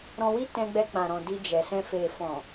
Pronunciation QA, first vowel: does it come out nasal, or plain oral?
nasal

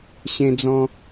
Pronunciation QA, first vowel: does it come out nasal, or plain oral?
nasal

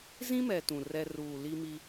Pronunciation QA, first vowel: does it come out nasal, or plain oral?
nasal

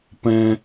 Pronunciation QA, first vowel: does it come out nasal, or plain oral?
nasal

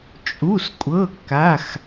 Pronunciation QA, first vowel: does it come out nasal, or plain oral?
oral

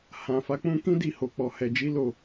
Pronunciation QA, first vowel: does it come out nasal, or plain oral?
nasal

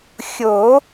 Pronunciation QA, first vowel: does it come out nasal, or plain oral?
oral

